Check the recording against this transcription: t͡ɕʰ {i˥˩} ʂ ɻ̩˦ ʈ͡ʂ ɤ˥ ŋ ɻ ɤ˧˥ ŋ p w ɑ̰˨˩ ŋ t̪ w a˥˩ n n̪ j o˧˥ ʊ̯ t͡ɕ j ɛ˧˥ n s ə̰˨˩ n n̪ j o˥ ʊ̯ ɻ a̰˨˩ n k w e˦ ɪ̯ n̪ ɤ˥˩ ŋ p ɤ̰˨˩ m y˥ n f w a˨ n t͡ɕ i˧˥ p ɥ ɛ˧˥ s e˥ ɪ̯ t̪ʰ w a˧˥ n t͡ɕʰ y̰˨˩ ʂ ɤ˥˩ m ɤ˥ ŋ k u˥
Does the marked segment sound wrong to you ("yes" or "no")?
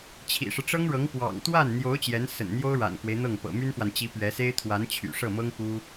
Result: yes